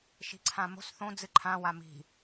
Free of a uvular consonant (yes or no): yes